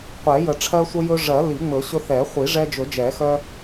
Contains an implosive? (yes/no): no